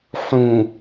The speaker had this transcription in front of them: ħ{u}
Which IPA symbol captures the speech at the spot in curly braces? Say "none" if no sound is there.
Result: ũ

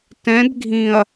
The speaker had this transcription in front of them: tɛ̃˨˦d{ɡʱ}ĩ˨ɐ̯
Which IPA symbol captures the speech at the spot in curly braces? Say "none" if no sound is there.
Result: ɡʱ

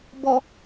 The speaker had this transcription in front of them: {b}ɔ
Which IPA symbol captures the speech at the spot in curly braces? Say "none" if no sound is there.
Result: b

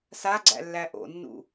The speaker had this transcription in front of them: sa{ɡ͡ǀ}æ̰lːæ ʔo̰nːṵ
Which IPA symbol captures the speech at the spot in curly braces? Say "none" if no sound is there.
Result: ɡ͡ǀ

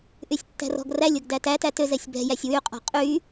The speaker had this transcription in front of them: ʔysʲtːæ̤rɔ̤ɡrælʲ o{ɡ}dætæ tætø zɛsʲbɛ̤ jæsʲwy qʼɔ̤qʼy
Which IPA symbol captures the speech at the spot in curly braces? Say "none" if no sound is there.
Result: ɡ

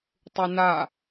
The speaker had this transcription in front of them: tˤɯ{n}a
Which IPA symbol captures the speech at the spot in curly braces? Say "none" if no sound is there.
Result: n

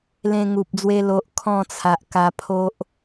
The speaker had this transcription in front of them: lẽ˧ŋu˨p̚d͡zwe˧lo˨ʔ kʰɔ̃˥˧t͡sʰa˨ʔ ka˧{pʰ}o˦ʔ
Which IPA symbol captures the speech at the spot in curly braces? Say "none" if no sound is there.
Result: pʰ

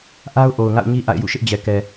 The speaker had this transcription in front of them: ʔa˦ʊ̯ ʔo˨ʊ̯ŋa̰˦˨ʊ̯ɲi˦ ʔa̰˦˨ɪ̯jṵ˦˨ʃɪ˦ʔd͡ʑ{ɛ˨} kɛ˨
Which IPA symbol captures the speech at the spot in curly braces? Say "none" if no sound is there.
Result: ɛ˨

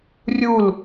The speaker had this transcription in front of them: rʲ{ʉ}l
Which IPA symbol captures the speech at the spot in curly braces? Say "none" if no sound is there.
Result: u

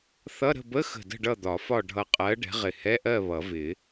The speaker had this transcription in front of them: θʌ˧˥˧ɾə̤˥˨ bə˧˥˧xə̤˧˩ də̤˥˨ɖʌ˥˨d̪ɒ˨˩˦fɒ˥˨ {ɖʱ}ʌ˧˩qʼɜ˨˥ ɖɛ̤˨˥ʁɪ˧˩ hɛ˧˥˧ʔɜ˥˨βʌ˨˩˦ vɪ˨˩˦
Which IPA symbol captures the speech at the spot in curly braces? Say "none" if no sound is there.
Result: ɖʱ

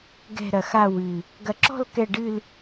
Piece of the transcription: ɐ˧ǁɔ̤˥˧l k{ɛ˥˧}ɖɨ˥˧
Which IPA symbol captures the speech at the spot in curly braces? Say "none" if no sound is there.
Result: ɛ˥˧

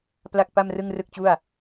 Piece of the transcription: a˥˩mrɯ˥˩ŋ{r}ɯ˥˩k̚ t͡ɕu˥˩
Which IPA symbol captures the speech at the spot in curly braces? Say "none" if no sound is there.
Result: r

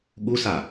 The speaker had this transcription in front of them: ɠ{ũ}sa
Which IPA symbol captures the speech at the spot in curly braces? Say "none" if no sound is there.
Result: u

